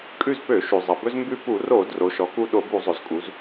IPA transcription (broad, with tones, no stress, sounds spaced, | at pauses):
kʼ ʉ˦˨ z p ø˧˩˧ ʃ ʉ˩ zˤ ʌ˩ b ɵ˦ z m b ʉ˦˨ p u˧˩˧ r o˧˩˧ d r o˩˧ ʃ ɔ˩˧ k u˦˨ ɗ o˧˩˧ b u˧˩˧ zˤ ɵ˩ z kʼ u˩˧ z